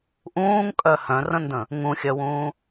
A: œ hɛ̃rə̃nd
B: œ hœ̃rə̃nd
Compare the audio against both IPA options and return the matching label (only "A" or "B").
B